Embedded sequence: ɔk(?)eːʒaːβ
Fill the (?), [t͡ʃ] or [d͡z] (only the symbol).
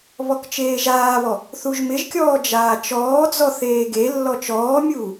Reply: t͡ʃ